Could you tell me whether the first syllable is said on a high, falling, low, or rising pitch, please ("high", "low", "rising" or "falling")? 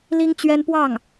high